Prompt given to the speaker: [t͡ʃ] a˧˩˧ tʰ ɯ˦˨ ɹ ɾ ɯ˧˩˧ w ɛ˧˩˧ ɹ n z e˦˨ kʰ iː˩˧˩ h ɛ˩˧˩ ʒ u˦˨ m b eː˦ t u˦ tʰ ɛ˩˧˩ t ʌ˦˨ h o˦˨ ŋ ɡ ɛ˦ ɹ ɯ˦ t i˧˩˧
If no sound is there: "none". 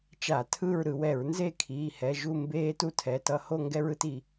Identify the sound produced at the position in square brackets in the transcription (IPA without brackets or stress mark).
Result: t͡ʃ